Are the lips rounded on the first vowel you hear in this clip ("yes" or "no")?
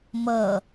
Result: no